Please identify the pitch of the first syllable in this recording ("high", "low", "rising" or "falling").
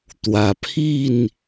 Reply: low